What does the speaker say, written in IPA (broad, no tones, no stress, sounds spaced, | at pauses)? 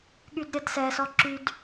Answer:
ɠ y d ɾʲ ɛ d s ɛ s ɔ ǁ y d